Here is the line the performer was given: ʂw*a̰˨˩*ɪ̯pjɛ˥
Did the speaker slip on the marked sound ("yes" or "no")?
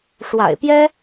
no